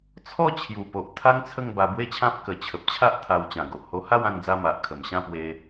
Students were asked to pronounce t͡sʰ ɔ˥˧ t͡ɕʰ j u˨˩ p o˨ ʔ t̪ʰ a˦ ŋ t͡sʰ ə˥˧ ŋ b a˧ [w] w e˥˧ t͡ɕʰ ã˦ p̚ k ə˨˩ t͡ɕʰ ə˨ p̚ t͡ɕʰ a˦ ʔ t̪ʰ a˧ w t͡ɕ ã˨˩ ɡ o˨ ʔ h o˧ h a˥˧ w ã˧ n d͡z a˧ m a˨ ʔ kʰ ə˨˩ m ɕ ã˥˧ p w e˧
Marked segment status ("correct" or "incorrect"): incorrect